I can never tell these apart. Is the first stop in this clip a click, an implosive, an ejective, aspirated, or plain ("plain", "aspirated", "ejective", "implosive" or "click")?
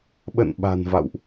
implosive